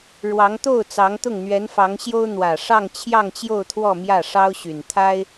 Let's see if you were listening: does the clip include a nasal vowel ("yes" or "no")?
no